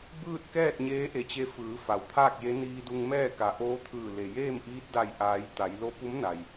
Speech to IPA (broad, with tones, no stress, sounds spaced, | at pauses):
b ɯː˥˨ t̚ k ɛː˥˨ t̚ ɲ eː˧˥ ʔ e˧˩ t͡ɕ e˧˥ f ɯː˩˧ f a˩ w t̪ʰ aː˥˨ k̚ j e˧˥ n iː˧ d u˧ ŋ m ɛː˥˨ k a˩˧ ʔ oː˧˥ t̪ʰ ɯː˧˩ l e˩ j eː˥˨ m ʔ iː˧˥ t̚ d a˧˩ j ʔ aː˩˧ j t̪ a˩˧ j l o˧ p u˧˥ m n a˩ j